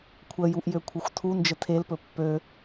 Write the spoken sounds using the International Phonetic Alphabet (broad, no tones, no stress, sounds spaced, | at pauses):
kʷʰ ə j u ʔ j ø kʷʰ ə xʷ tʰ u n d͡ʒ ə tʰ e l p ɵ pː ø